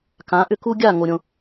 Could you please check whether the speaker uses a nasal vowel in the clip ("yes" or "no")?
yes